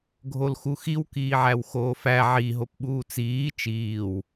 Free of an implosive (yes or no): no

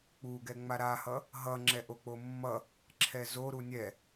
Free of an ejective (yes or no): yes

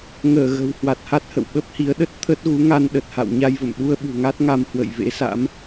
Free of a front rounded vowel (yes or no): yes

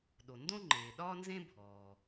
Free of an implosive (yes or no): no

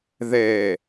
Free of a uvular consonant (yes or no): yes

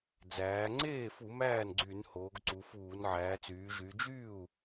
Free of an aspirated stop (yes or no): yes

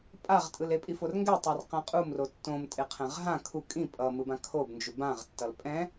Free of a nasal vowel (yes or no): no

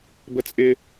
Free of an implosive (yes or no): yes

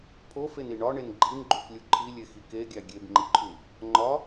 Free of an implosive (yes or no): yes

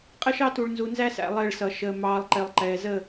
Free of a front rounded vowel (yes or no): yes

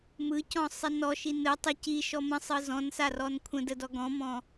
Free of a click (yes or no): yes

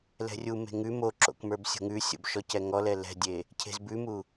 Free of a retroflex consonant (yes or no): yes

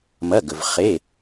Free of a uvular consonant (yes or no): no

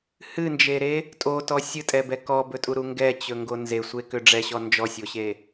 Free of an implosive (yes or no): yes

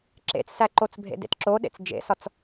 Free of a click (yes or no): no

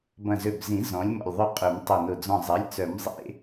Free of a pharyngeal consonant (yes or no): yes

